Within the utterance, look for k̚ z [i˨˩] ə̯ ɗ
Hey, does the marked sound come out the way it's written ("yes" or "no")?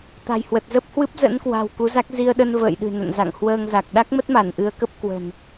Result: no